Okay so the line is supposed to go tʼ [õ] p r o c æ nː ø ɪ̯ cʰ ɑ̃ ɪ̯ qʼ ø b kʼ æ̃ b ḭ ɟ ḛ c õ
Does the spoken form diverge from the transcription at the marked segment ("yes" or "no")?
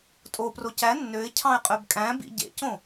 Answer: yes